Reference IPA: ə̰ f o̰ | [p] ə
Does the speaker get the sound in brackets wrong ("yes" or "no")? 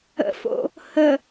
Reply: yes